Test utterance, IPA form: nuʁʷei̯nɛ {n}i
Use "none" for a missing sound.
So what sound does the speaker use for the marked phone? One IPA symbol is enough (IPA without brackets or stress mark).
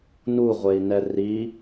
r